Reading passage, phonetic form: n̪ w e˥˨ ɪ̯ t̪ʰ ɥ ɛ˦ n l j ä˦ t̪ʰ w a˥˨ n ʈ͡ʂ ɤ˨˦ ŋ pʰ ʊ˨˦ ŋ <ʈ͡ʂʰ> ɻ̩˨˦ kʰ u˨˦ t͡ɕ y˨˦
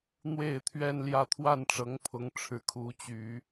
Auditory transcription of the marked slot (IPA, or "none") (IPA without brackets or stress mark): ʈ͡ʂʰ